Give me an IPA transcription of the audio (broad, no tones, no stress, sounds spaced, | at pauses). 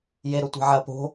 j e ɾ o tʷ e̤ ʕ ɐ p o̤